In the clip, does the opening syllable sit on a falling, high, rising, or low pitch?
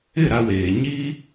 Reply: falling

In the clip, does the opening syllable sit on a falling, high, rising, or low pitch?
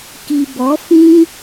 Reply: low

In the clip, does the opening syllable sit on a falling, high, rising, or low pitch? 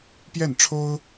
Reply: falling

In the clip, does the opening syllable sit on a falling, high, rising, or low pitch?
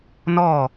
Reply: falling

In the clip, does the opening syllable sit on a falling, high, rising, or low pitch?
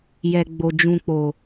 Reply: low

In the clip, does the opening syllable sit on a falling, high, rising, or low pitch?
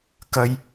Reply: high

